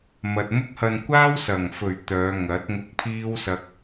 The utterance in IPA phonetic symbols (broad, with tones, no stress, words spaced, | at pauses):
mɐ˨t̚mʊ˥k̚hɐ˧n kʷaː˥wsɐ˨˩ŋfɵ˨˩ɥ t̪œː˨˧ŋɐ˨˥t̚ ŋʊ˧k̚pʰiː˥wsɐ˧k̚